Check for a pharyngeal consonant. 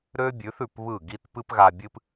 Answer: absent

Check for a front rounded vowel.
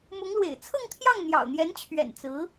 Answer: absent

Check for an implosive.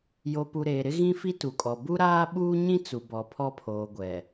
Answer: present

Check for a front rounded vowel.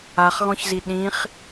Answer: absent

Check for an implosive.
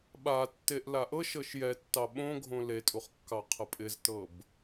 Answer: present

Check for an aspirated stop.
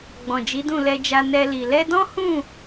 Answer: absent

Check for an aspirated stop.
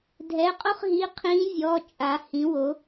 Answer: present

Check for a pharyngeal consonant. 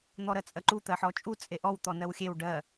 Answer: present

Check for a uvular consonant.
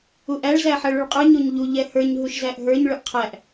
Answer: present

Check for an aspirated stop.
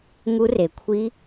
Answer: present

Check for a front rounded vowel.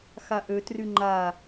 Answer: present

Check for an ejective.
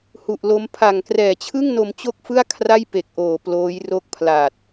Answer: absent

